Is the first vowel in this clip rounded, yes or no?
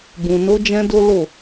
yes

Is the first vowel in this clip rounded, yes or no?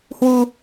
yes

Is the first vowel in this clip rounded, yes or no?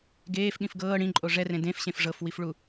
no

